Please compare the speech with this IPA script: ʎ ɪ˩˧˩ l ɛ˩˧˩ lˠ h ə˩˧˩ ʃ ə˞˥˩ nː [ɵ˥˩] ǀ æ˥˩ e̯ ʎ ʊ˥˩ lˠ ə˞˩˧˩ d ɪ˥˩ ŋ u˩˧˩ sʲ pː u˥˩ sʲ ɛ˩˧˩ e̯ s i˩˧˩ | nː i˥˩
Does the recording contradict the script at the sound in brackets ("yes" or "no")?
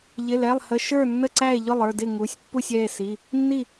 yes